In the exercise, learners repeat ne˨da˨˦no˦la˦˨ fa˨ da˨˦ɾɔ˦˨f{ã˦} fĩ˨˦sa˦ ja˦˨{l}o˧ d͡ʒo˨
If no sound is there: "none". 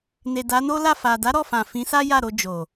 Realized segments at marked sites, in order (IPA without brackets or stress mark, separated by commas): ã˨, ɾ